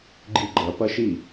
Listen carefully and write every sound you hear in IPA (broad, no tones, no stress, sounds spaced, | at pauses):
ɡ͡ǃ i ɡ͡ǃ ɐ p ɐ ʃ i